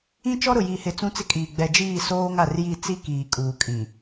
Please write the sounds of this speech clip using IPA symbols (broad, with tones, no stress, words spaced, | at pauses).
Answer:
ĩ˦t͡ʃɔ˦ɾʊ˨ ji˨hɪ˨ t͡sũ˦t͡sɪ˦kʼiː˨ ɡ͡bɛ˨d͡ʒiː˦˨soː˦ŋa˨r ji˦˨ t͡si˦kiː˨kʼuː˨kʼĩ˨